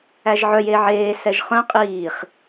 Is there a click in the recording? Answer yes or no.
no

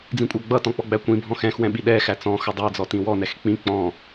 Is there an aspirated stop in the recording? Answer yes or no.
no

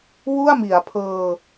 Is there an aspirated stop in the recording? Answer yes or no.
yes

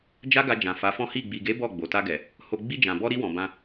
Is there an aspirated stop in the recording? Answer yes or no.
no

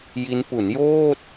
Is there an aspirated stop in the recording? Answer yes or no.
no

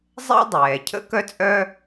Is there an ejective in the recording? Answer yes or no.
yes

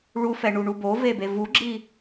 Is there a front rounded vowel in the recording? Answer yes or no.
no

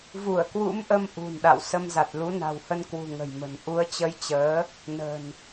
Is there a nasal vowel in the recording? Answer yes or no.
no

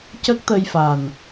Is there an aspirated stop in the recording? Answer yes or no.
no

